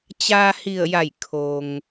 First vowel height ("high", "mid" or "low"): low